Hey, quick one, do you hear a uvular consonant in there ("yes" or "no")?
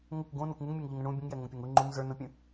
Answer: no